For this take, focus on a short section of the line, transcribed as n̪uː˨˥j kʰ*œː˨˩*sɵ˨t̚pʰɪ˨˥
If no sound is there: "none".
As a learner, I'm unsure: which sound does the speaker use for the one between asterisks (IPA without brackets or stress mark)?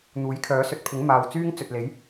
œː˨˥